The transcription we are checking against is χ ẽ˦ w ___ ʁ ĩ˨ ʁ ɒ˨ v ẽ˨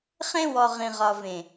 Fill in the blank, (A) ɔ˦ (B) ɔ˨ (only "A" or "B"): B